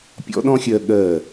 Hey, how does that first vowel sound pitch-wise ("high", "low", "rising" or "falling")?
high